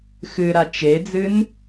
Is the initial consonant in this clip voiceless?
yes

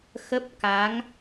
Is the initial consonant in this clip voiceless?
yes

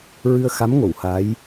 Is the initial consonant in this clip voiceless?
no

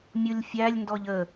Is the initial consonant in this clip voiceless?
no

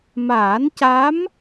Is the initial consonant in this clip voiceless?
no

